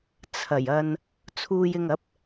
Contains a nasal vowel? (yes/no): no